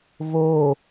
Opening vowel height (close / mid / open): mid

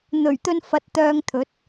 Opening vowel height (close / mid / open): mid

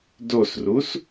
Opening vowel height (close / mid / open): mid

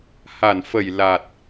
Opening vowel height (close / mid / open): open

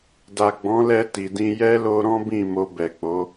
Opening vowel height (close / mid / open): open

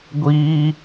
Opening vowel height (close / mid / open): close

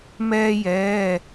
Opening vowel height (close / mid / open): mid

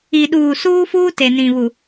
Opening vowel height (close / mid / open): close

